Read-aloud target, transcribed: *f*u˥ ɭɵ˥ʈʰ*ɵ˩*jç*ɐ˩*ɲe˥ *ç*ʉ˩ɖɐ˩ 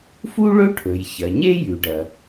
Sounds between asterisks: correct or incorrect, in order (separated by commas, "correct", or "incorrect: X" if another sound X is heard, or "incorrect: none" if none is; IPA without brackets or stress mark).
correct, correct, correct, incorrect: j